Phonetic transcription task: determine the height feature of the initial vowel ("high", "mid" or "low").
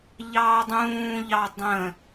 low